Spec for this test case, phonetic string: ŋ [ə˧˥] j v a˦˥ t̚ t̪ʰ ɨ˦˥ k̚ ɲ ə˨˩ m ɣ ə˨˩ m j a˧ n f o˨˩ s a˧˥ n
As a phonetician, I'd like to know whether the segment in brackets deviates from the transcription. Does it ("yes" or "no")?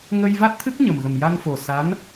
yes